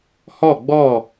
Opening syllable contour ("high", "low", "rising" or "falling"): falling